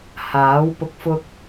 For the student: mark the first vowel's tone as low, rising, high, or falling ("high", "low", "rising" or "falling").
rising